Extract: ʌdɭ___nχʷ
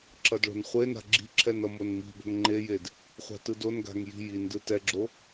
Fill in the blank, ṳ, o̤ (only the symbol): o̤